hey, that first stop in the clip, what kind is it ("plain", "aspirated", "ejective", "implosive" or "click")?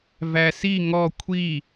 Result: aspirated